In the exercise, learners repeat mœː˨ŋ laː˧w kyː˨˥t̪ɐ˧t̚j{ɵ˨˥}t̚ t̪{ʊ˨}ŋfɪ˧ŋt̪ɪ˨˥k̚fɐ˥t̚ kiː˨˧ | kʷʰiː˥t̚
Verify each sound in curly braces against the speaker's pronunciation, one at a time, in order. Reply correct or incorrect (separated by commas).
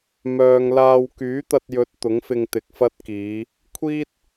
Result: correct, incorrect